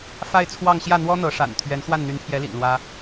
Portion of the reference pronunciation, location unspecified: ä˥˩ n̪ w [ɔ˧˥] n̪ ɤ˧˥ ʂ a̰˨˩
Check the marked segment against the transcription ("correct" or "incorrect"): incorrect